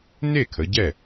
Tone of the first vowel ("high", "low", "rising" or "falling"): falling